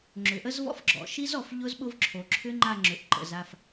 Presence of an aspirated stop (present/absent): present